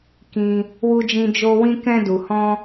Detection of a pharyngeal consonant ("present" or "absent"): absent